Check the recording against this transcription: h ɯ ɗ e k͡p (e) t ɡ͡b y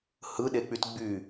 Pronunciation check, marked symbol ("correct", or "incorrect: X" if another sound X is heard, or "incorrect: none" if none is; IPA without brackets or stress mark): incorrect: y